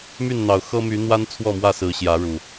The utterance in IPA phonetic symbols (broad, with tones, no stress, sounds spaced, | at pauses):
m y˥˨ n n̪ ɑ˨˩ ʊ̯ x ɤ˦ m y˨˦ n̪ w a˦ n t͡sʰ w ɔ˥˨ m w ä˥˨ s ɹ̩˨˦ ɕ j ä˨˦ ɻ u˨˩